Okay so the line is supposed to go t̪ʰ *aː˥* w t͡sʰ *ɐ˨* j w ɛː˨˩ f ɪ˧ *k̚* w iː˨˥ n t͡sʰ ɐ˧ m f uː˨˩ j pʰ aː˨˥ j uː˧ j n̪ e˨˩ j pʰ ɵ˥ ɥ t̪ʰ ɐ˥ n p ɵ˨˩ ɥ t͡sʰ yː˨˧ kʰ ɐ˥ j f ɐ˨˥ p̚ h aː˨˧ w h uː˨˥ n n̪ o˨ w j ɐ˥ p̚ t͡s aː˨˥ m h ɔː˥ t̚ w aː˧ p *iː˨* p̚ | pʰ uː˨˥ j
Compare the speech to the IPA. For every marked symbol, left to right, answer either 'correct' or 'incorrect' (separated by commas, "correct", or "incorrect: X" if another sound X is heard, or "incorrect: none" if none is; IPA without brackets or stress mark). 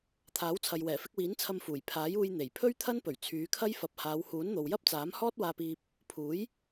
incorrect: aː˨˥, correct, correct, incorrect: iː˧